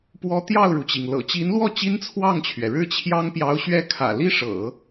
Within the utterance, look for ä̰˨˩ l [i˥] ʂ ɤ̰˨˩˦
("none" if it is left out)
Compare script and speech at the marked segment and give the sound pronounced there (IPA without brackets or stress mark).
i˥